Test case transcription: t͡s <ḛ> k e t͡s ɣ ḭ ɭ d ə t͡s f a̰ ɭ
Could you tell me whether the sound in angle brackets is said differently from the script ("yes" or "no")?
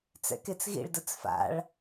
yes